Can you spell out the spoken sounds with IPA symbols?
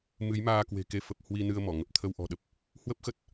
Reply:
m ɨ˨˦ j m aː˧ k w e̤˨˩ k e˧ f ə˨˩ p̚ h w i˧ n ɨ˧ ə̯ m ɔ˧˩ ŋ ə˨˩ p̚ t̪ʰ ə˧ w ʔ ɔ̤˨˩ ɗ ə˦˥ p̚ | h w ə˦˥ p̚ x ə˦˥ t̚

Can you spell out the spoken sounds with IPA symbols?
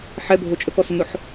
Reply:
ħ ɛ bʱ o t͡ʃʼ ə k ɔ s ʊ n ʊ ħ

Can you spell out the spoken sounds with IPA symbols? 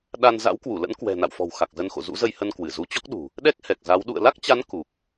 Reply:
ɗ a˧ n z a̰˧˥ w k w u˧˩ l ə̰˧˥ n k w ɛ̤˨˩ n a̰˧˨ w f ɔ̤˨˩ w x a˨˩ k̚ z ə˨˦ n x o̰˧˨ z ṵ˧˥ z ə˧ j h ə˧ n k w ɨ˧˩ z u˨˦ t͡ɕ ɔ˦˥ k̚ ɗ ṳ˨˩ | ɗ ɛ˦˥ k̚ h ɛ˨˩ k̚ z a˨˦ w ɗ ṵ˧˨ ə̯ l a˦˥ k̚ t͡ɕ a˨˦ n k u˨˩ k̚

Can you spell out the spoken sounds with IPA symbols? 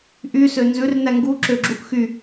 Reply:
ʔ y s ø n z ʉ r n æ ŋ ɡ u ǁ ø ɡ͡ǁ u ʔ x y

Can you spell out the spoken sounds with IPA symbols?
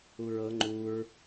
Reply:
u ɹ ɤ ŋ͡ǃ u ɹ

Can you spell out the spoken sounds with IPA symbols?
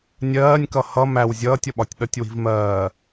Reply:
nʲ ɜː nʲ k ʌ h ʌ m æ w zʲ ʌː tʲ ʌ ɓ ɒ tʲ ɗ ʌ tʲ w i̤ v m ɜː

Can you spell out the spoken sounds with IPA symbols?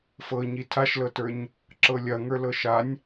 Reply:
f ɤ ɲ i tʰ a ʃ l ɤ t ə˞ ɲ | ǁ ɤ lʲ ɐ ŋ ə˞ l ɤ ʃ a nʲ

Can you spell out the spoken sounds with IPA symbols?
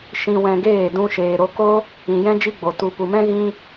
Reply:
ʃ ĩ˧ w ɛ̃˧ ɡ eː˦˨ d ũ˦ ʃ eː˧ ɾ o˦ k o˦ | ĩ˨ j ɛ̃˦ d͡ʒ i˦ ɡ͡b o˨ t u˧ p u˨ m ɛ̃˦ ɣ ĩ˦

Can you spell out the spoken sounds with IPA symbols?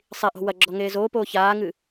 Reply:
sˤ i ʔ o̤ w ɐ ɡ͡ǁ ɔ ŋ eː z oː p oː ç aː ŋ ɨ

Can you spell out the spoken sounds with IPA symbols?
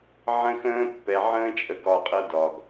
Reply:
ʕ ə̃˦ x ə̃ː˦ pː ɛ˨ ʕ ə̃ː˦ t͡ʃʼ ə˨ ɡ ɒ˦˨ qʼ ɤ˦ d ɒ˨ ɡ

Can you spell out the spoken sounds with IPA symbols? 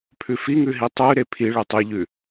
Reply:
pʰ ʉ f i ŋ ʉ ɦ i tˤ ʉ ɾ e pʰ i ɭ e tˤ e ʎ ʉ

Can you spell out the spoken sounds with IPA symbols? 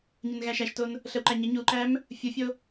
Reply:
ɲ ə n ɣ æ ʃ æ ʃ t o n | ɬ ə w ǃ æ ɲ ə ɲ u ǃ æ m | fʲ u fʲ o

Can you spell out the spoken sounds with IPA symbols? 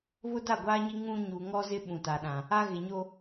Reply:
β ʊ˦ d a˦˨ ɡʷ aː˦ ɲ i˦ ŋ ũ˦ ɲ u˨ ŋ ɔ˦ z ɪ˦ ɓ ũ˨ t a˨ ɗ ã˨ | a˦ ɣ ɪ˨ ɲ o˦

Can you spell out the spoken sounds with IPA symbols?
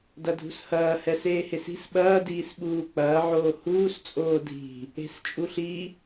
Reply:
d ɐ dʱ ṳ s h ɐː h ɛ s eː h e s i̤ s ɓ ɐː d iː s ɓ uː k͡p ɐː ʕ oː h uː s t͡sʼ oː dʱ i̤ | e̤ s t͡ʃʼ u ɬ i

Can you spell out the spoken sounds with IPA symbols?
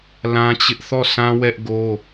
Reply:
l ã˦ t͡ɕ ɪ˦ ʔ θ ɔ˦˨ sʰ ã˦ w ɛ˦ ʔ ɡ o˦

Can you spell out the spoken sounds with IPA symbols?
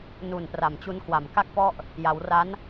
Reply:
n u˨˩ n p r a˨˩ m t͡ɕ u˧ n k w a˨˩ m k a˥˩ k̚ p ɔ˥˩ ʔ | j a˩˦ w r a˦˥ n

